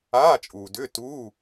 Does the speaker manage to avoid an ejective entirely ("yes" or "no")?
no